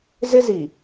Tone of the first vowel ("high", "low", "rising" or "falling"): high